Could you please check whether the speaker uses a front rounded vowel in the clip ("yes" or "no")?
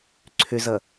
yes